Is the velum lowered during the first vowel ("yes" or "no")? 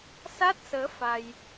no